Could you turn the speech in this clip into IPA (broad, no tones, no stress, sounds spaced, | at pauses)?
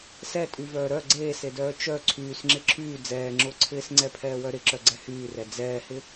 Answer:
s ɛ tʼ y v œː ɾ œ ɡ͡ǀ eː s e d œː t͡ʃ œ ǀʰ yː s ŋ͡ǁ ɪ ǁʰ yː d͡z ɛː ŋ͡ǁ ʊː ǀʰ ɪː s ŋ͡ǀ ɛ pʰ ɛː w œ ɾ ɪ ǁ œ ɡ͡ǀ ɛ h yː r ɛ d͡z ɛː h ɪ